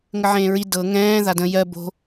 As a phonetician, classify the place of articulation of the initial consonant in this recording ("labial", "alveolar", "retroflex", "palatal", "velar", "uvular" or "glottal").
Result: velar